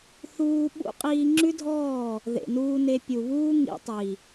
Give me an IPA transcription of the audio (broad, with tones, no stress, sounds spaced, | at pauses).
θ uː˧ ɓ ṵ˦ qʼ iː˧ ŋ͡ǁ ʉ˦ dʱ ɔː˦˨ | ð ḛ˨ n uː˧ n e˧ pʲ u˨ β uː˦ ŋ ḭ˧ tˤ i˨